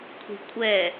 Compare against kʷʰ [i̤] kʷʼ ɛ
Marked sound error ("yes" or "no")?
no